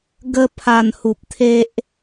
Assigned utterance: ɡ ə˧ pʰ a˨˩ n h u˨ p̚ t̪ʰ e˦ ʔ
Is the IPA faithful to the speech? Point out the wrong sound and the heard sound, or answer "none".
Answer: none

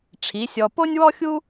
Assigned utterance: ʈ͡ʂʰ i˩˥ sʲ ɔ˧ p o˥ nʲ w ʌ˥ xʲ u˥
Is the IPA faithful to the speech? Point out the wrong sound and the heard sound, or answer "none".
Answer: ʌ˥ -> ɔ˥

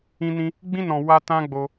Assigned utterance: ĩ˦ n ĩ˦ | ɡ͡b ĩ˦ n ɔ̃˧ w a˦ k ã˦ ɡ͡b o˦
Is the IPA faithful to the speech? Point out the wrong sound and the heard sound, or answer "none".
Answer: k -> t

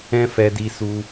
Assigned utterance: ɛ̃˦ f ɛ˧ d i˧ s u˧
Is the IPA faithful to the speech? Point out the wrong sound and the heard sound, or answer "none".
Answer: none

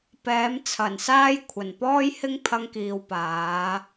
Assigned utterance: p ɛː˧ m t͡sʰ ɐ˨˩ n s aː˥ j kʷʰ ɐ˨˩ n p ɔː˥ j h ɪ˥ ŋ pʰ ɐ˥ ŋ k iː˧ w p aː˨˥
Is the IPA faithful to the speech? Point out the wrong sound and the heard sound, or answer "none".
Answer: ɛː˧ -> ɛː˨˥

